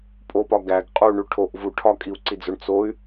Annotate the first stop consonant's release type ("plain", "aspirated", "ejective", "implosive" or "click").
ejective